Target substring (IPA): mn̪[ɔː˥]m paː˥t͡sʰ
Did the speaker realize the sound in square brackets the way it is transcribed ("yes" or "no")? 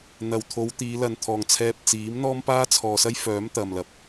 yes